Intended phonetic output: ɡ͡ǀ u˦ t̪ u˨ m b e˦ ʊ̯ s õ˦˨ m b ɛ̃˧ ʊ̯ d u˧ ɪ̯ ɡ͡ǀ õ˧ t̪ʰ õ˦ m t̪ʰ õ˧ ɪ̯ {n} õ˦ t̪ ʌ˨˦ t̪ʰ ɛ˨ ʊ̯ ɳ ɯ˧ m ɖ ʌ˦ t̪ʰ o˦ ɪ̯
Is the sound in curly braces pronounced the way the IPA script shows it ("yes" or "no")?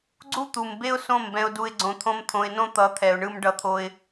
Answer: yes